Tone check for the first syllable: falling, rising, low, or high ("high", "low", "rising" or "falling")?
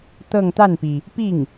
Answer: falling